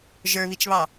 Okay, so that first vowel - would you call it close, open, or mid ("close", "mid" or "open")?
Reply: mid